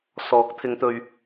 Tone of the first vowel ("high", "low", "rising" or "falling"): rising